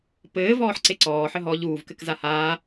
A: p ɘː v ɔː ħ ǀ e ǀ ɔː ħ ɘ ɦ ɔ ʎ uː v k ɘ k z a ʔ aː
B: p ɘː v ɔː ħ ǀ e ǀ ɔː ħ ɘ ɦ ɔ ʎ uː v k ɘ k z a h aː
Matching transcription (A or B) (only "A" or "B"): B